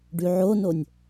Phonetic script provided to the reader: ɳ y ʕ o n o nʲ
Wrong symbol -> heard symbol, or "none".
ɳ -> ɖ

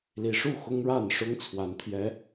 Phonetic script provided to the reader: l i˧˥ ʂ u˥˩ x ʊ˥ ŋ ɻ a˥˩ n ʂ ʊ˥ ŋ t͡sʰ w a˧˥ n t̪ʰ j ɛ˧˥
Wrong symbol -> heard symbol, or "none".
none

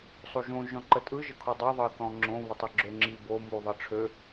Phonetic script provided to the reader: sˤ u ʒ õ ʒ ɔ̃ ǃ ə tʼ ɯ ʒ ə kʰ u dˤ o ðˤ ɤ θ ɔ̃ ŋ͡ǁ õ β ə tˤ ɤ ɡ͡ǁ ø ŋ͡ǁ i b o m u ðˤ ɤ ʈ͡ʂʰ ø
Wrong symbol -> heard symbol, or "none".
none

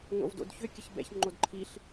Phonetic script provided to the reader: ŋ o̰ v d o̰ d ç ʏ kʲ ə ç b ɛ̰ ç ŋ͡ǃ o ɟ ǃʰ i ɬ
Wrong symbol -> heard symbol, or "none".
ɟ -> d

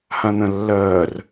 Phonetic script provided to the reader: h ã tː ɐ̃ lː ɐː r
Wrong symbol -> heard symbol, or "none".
tː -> n̪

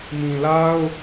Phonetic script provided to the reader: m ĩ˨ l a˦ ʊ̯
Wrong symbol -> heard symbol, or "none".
none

